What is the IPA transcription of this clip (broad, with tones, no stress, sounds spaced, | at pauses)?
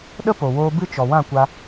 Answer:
ɗ ə˦ p o˨ w oː˧ b ɨ˦ t͡ʃ ɔ˨ w ã˦˨ kʷ a˧